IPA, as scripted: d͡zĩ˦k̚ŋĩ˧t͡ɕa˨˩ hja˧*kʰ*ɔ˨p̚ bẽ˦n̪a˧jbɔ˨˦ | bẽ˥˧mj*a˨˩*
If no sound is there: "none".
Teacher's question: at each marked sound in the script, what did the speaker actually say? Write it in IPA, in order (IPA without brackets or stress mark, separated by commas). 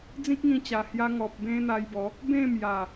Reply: ŋ, a˨˩